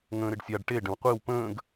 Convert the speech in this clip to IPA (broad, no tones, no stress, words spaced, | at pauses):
ŋə̃ːɾɪɖsʲaɖ ʈe ɖə̃wqʷiw pə̃ːɡ